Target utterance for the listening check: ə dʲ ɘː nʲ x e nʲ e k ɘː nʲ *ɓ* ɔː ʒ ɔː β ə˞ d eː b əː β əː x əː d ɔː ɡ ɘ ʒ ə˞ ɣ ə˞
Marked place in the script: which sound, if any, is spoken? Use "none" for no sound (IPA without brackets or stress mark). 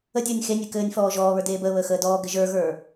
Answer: f